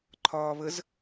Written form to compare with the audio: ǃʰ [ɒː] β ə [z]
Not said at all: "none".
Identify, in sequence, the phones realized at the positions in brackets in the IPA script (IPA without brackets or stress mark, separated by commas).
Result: ɒː, z